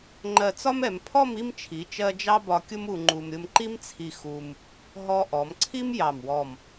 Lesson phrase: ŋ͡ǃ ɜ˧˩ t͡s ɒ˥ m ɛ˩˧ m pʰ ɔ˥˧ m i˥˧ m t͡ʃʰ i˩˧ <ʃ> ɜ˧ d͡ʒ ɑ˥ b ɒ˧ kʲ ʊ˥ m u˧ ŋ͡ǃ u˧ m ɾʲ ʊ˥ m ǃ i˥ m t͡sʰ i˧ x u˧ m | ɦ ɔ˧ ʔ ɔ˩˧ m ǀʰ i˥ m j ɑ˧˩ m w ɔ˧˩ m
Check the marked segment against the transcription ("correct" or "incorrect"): incorrect